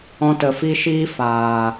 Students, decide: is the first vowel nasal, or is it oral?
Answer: nasal